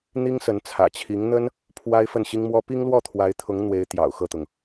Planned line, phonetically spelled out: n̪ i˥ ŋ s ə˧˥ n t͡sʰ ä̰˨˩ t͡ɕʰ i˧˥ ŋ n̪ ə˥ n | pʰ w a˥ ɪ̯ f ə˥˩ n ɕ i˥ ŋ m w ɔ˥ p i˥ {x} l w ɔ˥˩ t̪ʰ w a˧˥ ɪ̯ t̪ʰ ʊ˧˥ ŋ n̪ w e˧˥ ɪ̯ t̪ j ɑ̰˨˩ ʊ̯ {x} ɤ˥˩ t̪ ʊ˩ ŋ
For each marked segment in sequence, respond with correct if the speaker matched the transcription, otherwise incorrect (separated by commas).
incorrect, correct